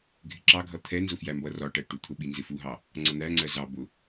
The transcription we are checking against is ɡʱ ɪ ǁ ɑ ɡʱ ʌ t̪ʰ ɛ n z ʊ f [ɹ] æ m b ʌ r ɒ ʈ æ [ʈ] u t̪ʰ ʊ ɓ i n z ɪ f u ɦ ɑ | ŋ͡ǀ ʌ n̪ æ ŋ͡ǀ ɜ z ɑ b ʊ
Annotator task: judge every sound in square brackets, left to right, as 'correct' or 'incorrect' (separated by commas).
incorrect, correct